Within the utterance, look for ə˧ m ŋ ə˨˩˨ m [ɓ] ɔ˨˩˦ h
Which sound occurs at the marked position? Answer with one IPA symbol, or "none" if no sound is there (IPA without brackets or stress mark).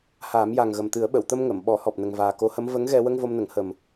ɓ